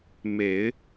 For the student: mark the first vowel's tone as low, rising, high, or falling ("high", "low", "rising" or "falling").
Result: low